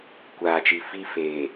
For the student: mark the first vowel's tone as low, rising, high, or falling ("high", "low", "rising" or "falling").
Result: low